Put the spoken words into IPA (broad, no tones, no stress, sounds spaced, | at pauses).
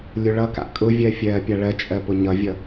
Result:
lʲ ʊ ɭ ʌ k a̰ kʼ ʊ vʲ ɜ fʲ ɜː pʲ a ɭ ɜ t͡ʃʼ ɜ p ʊ ɲ ʌ vʲ ʌ